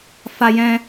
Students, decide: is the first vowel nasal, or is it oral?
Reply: oral